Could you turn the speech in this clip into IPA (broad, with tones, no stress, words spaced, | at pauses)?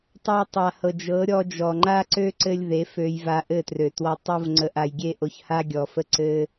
tˤa˧tˤa˨hɤ˨ d͡ʒɤ˨˦ɾʲɔ˧d͡ʒɔ˨ ŋ͡ǃa˦ǀø˦ǀɘ˧lʲ ðe˨˦fø˧j va˧ʔɘ˦˨trø˨twɔ˧ tˤo˧vŋ͡ǀə˨ʔa˨j ɡʲe˦ʔo˧çha˦ ɡʲɔ˨fə˧ ǀɘ˦